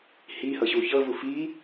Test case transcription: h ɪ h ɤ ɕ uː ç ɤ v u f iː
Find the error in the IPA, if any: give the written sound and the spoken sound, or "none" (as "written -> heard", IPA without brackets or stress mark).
ɪ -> i